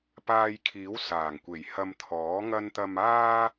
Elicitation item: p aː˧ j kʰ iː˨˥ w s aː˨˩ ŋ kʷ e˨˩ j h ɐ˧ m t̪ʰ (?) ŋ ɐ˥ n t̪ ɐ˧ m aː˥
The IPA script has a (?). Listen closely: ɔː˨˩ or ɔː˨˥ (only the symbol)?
ɔː˨˥